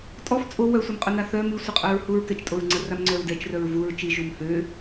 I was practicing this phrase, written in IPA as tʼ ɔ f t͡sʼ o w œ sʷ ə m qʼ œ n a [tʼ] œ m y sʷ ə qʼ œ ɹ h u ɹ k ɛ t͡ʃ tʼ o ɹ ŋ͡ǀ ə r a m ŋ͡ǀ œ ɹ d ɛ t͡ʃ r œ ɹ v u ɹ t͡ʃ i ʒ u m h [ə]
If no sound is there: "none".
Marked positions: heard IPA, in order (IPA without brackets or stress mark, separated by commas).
θ, ø